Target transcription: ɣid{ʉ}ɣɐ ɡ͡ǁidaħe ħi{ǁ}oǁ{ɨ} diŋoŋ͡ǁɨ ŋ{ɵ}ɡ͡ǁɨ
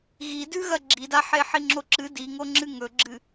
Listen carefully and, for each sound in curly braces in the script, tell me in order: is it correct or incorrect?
correct, incorrect: ŋ͡ǁ, correct, correct

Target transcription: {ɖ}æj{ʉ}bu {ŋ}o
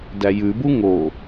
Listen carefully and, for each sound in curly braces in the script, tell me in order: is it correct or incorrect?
incorrect: d, correct, correct

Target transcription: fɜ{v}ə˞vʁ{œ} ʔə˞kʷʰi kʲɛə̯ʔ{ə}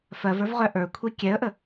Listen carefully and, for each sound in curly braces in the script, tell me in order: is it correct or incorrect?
correct, correct, correct

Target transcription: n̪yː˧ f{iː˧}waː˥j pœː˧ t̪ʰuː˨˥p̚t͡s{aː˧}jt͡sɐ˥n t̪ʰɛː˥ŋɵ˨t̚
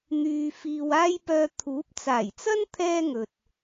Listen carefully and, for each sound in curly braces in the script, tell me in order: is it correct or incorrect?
correct, incorrect: aː˨˩

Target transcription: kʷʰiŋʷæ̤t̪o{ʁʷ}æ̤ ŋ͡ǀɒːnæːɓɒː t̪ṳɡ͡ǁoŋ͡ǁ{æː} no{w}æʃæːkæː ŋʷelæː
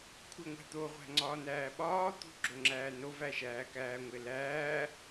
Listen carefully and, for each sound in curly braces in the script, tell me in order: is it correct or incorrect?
correct, correct, incorrect: v

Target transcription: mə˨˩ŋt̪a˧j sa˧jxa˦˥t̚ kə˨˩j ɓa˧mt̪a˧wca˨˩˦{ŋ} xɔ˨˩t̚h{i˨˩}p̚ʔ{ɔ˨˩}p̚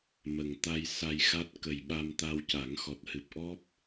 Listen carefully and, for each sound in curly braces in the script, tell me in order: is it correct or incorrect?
correct, incorrect: ɨ˨˩, incorrect: ɔ˦˥

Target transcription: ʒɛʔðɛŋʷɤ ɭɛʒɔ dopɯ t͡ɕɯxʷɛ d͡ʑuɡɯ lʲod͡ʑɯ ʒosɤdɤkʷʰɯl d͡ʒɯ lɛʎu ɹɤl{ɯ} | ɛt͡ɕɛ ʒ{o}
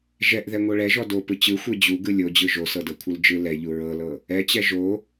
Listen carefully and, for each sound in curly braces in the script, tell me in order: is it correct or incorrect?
incorrect: ɤ, correct

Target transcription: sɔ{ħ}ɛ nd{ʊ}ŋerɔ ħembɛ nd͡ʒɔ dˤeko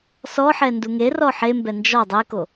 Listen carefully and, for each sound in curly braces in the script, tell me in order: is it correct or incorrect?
correct, incorrect: u

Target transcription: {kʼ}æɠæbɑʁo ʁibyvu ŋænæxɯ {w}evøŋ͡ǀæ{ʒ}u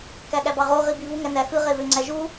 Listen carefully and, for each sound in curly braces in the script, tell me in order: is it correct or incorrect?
incorrect: k, incorrect: ʁ, correct

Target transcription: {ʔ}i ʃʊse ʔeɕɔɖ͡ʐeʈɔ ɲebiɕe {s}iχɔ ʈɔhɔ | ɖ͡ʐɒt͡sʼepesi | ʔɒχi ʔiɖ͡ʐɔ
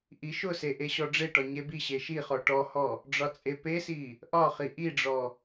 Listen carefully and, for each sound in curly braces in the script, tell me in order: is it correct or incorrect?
correct, incorrect: ʃ

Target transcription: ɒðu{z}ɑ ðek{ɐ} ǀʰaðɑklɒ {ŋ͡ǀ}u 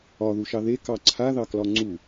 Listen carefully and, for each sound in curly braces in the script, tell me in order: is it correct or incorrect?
incorrect: ʃ, incorrect: ɑ, correct

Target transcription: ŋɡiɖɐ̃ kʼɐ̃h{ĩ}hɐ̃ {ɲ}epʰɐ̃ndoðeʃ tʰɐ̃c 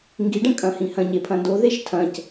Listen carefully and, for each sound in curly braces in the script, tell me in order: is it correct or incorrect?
correct, correct

